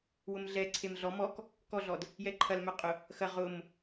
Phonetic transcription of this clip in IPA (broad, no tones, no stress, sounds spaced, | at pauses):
w ʊ m ɮ ɛ ǀʰ e m ɮ ɔ m ɔ k | k ɔ ɮ ɔ d | j ɛ ǃʰ ɐ l m œ qʼ ʊ | x ɐ ʁ ʊ m